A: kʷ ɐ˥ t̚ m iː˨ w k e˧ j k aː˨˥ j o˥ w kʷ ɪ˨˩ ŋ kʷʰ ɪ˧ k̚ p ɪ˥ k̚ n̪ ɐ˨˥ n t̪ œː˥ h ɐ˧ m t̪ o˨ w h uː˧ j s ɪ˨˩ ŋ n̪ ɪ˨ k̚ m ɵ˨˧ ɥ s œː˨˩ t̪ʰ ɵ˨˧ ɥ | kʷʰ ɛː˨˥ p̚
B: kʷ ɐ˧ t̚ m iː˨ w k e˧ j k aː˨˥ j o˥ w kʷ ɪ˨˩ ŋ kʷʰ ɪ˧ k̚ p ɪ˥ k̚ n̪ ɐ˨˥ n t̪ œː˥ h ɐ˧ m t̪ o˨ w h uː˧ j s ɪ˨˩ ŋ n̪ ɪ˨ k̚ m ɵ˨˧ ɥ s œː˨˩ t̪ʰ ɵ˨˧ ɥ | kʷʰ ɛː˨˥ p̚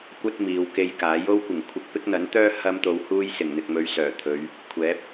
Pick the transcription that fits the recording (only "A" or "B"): A